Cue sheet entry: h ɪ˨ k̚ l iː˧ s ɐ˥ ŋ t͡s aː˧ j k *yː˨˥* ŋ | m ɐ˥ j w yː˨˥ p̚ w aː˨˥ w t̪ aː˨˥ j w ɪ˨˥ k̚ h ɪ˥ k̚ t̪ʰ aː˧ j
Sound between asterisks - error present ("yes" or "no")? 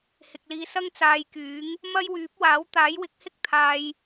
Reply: no